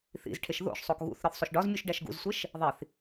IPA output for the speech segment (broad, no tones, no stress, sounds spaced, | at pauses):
θ ḭ z ʈʰ e ʃ ð o̰ ʃ sˤ o k ɣ ṵ θ ɾ ɒ θ sˤ o ʃ ɖ ɒ z mʲ u ʃ ɖ æ ʃ ɡ ṵ z sʷ e ʃ | ðˤ i θ